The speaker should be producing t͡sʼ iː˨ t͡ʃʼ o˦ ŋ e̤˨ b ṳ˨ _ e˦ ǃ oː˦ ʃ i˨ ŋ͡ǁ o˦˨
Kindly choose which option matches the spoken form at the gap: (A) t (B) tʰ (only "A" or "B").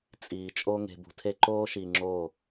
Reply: B